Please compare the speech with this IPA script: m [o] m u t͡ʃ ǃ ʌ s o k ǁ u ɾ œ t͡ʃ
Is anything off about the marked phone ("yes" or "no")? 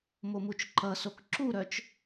no